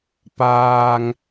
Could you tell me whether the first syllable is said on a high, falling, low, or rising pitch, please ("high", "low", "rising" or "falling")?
low